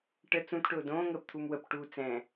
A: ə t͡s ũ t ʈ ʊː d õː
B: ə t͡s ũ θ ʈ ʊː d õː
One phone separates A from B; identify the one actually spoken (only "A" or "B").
A